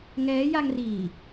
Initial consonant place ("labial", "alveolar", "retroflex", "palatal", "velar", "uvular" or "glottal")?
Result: velar